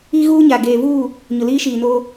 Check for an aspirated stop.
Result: absent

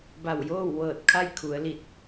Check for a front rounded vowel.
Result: absent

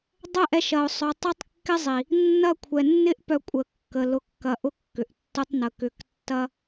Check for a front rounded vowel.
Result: present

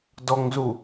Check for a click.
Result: absent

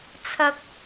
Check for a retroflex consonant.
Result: absent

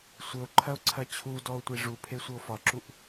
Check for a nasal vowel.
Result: absent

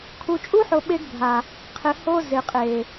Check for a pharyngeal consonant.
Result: present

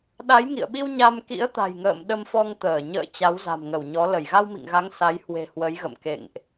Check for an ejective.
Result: absent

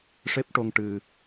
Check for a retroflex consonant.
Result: present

